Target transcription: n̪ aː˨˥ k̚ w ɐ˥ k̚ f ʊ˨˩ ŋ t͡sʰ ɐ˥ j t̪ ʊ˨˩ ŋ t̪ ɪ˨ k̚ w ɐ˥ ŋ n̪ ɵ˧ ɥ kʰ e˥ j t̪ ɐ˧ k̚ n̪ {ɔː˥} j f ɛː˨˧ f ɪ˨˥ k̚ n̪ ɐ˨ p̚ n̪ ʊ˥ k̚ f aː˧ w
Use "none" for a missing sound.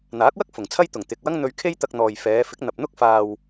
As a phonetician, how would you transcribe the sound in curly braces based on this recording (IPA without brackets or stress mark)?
ɔː˨